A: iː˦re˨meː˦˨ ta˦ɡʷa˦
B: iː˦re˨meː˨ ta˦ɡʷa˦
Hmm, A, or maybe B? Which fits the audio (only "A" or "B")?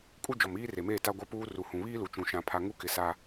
A